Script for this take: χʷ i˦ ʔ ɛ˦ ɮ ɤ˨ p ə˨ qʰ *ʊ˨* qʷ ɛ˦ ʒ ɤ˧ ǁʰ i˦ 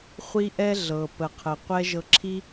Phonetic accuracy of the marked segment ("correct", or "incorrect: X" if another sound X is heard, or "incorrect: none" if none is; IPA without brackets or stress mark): incorrect: ə˨